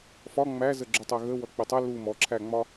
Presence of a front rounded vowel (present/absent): absent